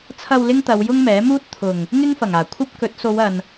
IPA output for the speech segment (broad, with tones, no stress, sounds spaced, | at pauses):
t͡sʰ ɐ˨ w l ɪ˥ ŋ t̪ ɐ˨˧ w j ʊ˥ ŋ m ɛː˨˥ m uː˥ t̚ t̪ʰ ʊ˨˩ ŋ | ŋ ɪ˥ ŋ f ɐ˨˩ ŋ aː˨˩ kʷʰ ɐ˥ p̚ k ɵ˨˥ t̚ s o˨˧ w ɐ˨ n